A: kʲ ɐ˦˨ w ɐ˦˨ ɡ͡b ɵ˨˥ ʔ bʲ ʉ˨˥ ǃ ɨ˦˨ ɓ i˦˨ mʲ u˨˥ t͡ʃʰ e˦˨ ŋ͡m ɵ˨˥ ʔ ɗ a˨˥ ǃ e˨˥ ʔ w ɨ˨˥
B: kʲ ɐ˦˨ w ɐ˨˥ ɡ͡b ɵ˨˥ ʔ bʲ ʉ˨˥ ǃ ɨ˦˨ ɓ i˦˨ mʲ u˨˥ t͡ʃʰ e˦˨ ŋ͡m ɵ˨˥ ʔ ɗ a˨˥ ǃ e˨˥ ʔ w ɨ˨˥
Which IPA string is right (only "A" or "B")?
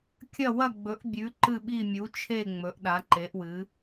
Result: A